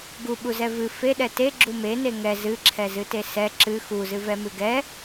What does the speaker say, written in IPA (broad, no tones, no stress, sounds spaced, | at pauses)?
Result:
ɡ u ɓ u z ɛ v ɨ f e ɗ ɛ t e ɡ͡ǁ u m e n e ŋ ɛ z ɨ ǁʰ ɛ z ɨ t e s ɛ ǁ ɨ x u z ɨ v ɛ m ɨ ɡ ɛ